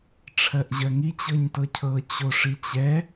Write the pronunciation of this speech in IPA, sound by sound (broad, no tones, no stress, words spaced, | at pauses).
ʈ͡ʂʰɜʔʑɜŋi t͡ɕɤɲtɤcʰɤ t͡ɕoʂit͡ɕɛ